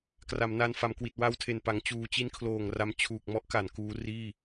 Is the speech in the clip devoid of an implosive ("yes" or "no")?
yes